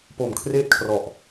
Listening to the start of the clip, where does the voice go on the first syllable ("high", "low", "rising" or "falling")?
low